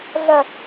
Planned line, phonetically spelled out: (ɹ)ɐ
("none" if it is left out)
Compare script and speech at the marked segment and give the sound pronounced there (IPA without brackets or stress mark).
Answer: ɮ